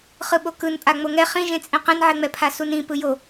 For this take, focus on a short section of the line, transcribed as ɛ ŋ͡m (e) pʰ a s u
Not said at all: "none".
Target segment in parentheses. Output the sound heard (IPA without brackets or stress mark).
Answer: ɛ